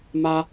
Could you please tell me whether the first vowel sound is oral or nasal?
oral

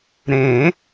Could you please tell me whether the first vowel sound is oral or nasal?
nasal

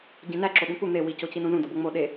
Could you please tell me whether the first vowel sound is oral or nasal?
nasal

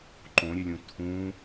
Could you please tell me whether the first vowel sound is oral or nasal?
nasal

